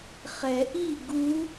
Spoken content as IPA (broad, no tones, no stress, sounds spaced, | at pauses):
χ ɛ ʔ i ɡ u